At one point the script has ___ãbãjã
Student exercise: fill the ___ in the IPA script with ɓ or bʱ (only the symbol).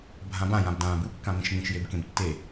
bʱ